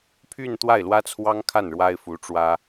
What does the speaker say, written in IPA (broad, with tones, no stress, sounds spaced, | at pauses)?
pʰ y˥˧ n t̪ w a˥˩ ɪ̯ l w ä˥ t͡sʰ w ɑ˥ ŋ kʰ a˥˩ n ɻ w a˥ ɪ̯ f u˧˥ ʈ͡ʂ w ä˥